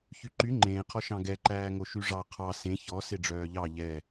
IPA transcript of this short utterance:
ç y ǃ y ŋ͡ǃ ẽː qʰ ɔ ʃ ɑ̃ ɡ ɛ ǃ æː ŋ o ʃ y ʐ ɑ qʰ ɑ s ẽ ç ɔ s e ɖ͡ʐ œː ʎ ɑ ʎ ɛ

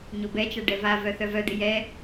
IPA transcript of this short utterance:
ɲ o b ɛ t͡ʃ a ɖ ɛ v a v œ θ œ v œ d̪ ɪ j ɛ

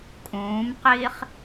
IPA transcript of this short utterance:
kʼ ũː m q iː χ

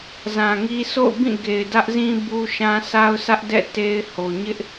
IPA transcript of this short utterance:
z ã˨ ŋ i˦ s o̰˦˨ ʊ̯ b ĩ˦˨ ɡ e˨ ɪ̯ d ä˦ ʔ z ĩ˦ b u˦ ʃ ã˦ s a˦ ʊ̯ sʰ ä˦ ʔ d ɛ̰˦˨ t e˦ ɪ̯ h o˨ ɲ ɪ˦ ʔ

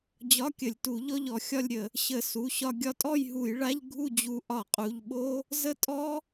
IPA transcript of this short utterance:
d͡ʑ ɒ˧˥˧ kʲ ə˧˩˧ lʲ t u˧˩˧ ʎ ɔ˥˧ ʎ ɔ˧ xʲ ɒ˥˧ lʲ ɾʲ ə˧˩˧ | ɕ ə˧˩˧ s u˩˧˩ ɕ ɒ˧ ɡʲ ɒ˧ tʼ ɔ˥˧ j ɦ u˧˩˧ j ɭ a˧˥˧ ʎ ɡʱ u˥˧ d͡ʑ u˧ ʔ ɒ˧˩˧ qʼ u˩˧˩ ʎ ɓ o˦˥ | z ə˦˥ tʼ ɔ˦˥

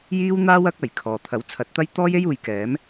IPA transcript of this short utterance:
j iː˥ w n̪ aː˥ w ɐ˥ k̚ ɐ˨˩ j kʰ ɔː˨ t̪ʰ ɐ˨˥ w t͡sʰ ɐ˨˥ t̚ t̪ ɐ˥ j t̪ ɔː˥ j e˥ j uː˨ j k ɛː˨˥ m

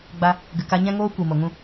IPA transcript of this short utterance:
ɡ͡b a˦ | ɡ ɨ˨ k a˧ ɲ ɛ̃˦ ŋ oː˦ kʷ i˨ m o˨ ŋ ũ˦

